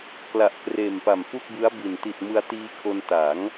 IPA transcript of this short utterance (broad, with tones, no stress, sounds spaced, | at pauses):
k l a˨˩ ʔ k r eː˨˩ m p a˨˩ m f u˥˩ k̚ b ɯ˦˥ a̯ b i˨˩ n t i˨˩ t̚ m ɯ˧ a̯ t iː˧ kʰ o˧ n t a˩˦ ŋ